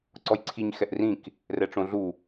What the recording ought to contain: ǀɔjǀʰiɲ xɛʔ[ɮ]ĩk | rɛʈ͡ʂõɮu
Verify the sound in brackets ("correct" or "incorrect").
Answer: incorrect